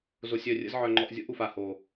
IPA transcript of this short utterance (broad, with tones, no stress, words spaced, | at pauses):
zo˧sʲœ˦˨ rʲə̰˦z ʕœ˧ŋ͡ǃɔ˧ʔzʲo̰˦ʔ u˨fa˨ ho˨